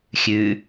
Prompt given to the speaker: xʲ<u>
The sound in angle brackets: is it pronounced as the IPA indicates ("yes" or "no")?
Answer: no